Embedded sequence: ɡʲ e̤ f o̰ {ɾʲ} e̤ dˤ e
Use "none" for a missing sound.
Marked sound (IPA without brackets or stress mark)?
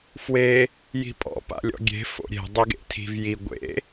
ɾʲ